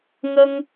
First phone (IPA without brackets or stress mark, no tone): ŋ